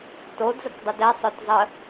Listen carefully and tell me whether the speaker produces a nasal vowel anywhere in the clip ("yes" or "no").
no